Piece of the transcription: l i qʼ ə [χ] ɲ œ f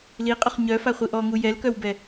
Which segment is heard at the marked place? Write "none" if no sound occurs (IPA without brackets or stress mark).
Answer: χ